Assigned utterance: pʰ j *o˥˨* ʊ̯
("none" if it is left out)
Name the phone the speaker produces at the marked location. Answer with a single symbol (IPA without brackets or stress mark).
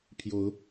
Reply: o˨˦